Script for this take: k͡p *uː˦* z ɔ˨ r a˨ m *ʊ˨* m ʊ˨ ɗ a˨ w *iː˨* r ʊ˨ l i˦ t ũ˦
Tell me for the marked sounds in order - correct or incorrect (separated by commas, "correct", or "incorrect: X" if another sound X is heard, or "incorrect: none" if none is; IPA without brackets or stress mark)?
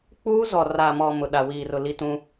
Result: correct, incorrect: ɔ˨, correct